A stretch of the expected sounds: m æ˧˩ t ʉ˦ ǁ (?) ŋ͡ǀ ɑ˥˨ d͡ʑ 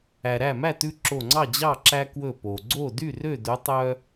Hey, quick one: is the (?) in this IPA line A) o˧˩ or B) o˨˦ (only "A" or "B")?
A